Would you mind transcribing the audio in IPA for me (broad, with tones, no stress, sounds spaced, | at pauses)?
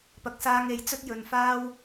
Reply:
p ɐ˨ k̚ s aː˧ ŋ e˨ j t͡s ɵ˥ t̚ j ɵ˨ n f aː˥ w